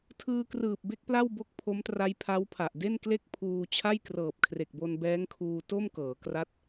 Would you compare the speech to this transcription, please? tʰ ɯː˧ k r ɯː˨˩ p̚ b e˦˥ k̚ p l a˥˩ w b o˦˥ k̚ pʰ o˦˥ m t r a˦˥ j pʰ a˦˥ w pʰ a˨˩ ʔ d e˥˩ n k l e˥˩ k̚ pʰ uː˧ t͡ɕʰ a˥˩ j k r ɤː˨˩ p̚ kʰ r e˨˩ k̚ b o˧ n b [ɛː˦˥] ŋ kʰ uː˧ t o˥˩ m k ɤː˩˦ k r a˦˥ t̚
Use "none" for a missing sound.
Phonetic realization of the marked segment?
ɛː˦˥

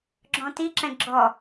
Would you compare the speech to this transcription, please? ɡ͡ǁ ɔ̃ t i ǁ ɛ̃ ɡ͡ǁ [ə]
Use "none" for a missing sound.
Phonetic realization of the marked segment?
ɔ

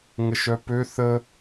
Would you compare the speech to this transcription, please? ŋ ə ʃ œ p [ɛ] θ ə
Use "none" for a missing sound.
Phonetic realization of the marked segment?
ø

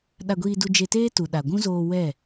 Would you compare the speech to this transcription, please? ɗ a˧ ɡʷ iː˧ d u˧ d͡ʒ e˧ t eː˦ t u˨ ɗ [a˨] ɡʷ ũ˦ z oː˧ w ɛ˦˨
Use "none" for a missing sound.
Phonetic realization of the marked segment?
a˨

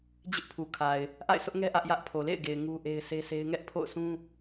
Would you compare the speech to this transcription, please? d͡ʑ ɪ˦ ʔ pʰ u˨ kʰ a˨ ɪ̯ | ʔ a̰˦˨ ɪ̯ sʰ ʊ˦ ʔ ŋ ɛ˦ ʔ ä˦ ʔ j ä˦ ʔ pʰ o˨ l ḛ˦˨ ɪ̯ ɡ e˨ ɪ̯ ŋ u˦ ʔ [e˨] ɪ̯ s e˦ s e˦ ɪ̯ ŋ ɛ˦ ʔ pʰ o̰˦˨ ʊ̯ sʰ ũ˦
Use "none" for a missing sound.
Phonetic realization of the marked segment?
e˦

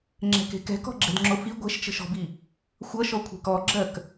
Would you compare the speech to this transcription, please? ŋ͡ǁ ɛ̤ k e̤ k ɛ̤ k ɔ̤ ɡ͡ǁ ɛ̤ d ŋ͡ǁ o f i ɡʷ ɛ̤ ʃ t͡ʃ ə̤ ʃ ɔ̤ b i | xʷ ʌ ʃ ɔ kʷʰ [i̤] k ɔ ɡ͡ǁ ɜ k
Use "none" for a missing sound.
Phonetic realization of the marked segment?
e̤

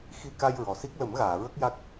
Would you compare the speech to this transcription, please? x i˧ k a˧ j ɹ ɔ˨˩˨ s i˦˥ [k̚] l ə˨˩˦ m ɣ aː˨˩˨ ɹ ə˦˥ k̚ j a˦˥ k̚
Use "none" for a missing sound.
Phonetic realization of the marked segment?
k̚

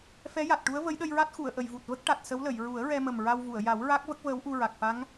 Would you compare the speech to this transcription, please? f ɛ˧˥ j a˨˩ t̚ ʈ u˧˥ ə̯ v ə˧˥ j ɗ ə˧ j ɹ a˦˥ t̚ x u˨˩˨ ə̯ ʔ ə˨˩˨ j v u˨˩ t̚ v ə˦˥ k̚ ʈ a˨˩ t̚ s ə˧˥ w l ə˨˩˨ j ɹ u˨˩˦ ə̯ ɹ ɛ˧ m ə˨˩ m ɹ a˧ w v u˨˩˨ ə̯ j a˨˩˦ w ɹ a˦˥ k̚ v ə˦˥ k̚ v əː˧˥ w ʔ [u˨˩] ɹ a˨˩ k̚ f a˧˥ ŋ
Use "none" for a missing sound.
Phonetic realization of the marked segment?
u˧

